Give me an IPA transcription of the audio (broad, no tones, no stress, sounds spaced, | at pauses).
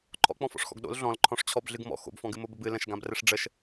ǃʰ ɔ̰ k͡p ɔ̃ f ɔ̰ ʂ x ɔ̰ ɡ ɗ o̰ l ɮ ɔ̃ l ǃʰ ɔ̃ ʂ t͡ɕʰ ɔ b ɮ ɨ ɡ m ɔ̰ x o̰ b f ɔ̃ ɡ ɨ m o b ə b ɨ l ə̃ ʃ ɡ ã b r ɘ ʂ ɖ͡ʐ ə ʃ